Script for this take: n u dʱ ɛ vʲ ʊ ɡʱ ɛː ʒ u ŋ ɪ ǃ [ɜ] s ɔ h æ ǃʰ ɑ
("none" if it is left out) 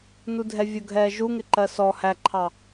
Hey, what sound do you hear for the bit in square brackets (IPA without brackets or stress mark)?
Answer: ɜ